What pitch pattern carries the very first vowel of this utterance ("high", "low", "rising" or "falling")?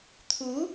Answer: rising